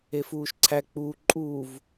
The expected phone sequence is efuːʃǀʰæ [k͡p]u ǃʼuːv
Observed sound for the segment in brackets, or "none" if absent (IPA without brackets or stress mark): k͡p